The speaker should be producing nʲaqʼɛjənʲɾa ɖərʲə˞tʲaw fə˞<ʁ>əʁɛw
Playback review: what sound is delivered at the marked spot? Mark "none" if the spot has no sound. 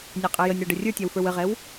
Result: w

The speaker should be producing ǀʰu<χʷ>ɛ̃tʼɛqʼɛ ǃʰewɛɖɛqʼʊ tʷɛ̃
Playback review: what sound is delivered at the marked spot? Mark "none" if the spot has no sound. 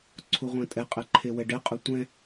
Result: ʁʷ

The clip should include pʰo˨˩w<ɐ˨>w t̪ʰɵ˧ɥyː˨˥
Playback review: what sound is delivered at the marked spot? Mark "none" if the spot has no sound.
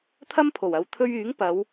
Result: ɐ˨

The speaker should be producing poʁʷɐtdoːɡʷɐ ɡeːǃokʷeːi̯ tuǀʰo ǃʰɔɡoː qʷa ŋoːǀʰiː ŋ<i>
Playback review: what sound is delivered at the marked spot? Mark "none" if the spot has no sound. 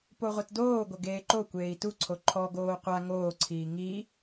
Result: i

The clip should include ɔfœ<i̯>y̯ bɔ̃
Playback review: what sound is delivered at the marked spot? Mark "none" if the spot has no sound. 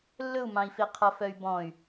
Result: none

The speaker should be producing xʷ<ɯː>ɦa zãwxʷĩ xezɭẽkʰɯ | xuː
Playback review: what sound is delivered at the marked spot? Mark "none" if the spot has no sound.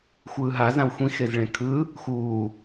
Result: ɯː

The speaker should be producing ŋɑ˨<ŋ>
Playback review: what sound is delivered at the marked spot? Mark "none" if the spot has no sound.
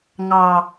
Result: none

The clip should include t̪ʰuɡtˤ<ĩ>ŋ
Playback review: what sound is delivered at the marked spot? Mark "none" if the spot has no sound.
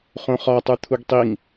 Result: i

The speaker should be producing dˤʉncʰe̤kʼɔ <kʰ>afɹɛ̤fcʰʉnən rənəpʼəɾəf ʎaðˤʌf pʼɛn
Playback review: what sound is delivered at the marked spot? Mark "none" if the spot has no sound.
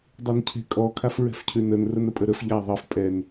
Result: kʰ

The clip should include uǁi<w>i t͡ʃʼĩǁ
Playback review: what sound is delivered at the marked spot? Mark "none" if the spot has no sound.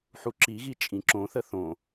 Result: ɣ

